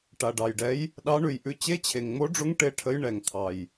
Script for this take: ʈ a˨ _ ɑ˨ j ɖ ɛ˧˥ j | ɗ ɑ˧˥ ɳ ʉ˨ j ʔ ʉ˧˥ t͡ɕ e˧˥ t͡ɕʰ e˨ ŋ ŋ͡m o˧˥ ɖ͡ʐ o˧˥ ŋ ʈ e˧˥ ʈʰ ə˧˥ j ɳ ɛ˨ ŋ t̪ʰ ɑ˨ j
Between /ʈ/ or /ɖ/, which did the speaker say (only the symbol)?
ɖ